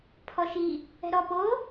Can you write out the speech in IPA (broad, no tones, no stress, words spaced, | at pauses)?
pʰɔʃi | ɛ̤ɾɔ po